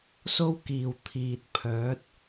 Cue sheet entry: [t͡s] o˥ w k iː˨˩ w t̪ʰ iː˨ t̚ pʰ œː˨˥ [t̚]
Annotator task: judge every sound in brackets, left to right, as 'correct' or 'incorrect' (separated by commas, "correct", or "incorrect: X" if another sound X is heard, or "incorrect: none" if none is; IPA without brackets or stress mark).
incorrect: s, correct